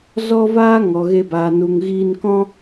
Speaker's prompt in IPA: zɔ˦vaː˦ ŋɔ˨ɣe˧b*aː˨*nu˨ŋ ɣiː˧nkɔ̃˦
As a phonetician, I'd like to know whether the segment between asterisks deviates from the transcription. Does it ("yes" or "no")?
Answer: no